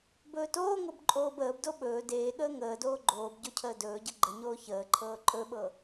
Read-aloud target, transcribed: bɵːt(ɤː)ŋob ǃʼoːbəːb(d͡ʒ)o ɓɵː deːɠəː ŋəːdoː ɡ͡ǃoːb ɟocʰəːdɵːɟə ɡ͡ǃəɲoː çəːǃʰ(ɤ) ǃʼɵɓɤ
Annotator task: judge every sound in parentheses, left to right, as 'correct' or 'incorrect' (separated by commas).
incorrect, incorrect, incorrect